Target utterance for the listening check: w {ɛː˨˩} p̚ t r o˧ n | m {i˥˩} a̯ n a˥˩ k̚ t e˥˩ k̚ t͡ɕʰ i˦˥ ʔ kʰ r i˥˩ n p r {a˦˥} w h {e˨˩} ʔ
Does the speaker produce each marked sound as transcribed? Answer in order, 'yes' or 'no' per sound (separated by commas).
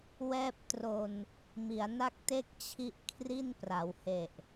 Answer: no, no, no, yes